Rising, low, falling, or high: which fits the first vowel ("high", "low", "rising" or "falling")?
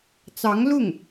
rising